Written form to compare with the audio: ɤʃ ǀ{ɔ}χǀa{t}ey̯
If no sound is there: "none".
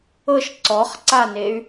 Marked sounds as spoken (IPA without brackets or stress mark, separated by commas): ɔ, n